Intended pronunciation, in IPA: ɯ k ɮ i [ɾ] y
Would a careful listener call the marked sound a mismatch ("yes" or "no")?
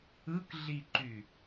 yes